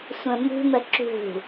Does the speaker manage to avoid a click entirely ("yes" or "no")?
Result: no